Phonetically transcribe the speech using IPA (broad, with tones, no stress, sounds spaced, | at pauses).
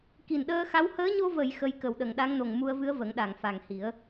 k i˨˩ n ɗ əː˧ x a˧˥ w h əː˧˥ ɲ o˧ v ə˨˩˨ j x ə˧˥ j k ə˨˩ w ɗ ə˨˩˨ ŋ ɗ a˧˥ ŋ n o˨˩ ŋ m u˧ ə̯ v ɨ˧˥ ə̯ v ə˨˩˦ ŋ ɗ a˨˩˨ ŋ f a˨˩ ŋ h i˨˩˦ ə̯